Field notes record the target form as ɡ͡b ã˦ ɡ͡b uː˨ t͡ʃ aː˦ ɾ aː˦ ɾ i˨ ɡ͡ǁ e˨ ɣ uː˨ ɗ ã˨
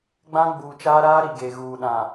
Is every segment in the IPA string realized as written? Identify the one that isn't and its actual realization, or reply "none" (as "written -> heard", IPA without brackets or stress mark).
ɡ͡ǁ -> ɡ